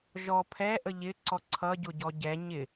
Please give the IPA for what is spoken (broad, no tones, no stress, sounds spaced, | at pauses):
ʒ ɔ pʰ ɛ ʔ ə ʎ ɪ ǀ ɔ ǀʰ ʌ ɟ ʊ ɟ ɔ ɟ ɛ ɲ ɪ